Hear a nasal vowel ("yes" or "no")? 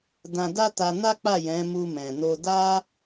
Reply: yes